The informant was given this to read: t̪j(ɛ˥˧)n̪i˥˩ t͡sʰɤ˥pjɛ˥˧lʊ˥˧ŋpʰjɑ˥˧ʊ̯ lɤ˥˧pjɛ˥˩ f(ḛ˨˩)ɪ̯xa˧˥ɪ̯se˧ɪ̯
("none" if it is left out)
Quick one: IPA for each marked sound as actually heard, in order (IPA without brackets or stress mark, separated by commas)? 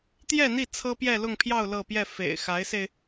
ɛ˥˧, ḛ˨˩